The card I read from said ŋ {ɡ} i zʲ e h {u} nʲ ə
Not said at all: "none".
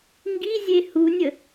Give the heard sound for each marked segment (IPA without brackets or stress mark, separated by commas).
ɡ, u